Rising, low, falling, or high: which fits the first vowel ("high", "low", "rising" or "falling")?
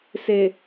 low